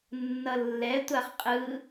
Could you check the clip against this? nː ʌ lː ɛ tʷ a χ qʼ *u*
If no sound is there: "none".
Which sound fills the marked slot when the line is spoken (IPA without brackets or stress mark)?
ɯ